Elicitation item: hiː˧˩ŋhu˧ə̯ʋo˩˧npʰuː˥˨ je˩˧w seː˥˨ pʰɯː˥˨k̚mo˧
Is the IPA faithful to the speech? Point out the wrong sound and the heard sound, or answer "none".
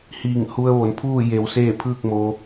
none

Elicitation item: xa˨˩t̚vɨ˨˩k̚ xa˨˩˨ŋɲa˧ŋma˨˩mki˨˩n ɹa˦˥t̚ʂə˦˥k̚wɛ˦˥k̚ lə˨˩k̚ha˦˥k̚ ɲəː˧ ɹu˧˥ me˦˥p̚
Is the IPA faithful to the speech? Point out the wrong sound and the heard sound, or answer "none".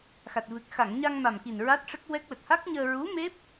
none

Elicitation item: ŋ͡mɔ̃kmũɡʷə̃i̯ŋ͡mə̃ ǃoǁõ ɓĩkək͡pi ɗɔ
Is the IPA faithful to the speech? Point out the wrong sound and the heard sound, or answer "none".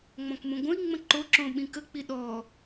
none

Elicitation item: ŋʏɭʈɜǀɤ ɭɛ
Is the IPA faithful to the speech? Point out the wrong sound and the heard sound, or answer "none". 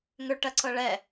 none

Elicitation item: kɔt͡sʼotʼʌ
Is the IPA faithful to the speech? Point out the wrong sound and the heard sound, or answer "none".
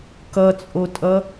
ɔ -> ʌ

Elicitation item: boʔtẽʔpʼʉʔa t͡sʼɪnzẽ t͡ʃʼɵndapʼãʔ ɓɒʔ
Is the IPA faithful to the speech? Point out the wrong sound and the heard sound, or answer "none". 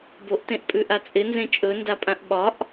none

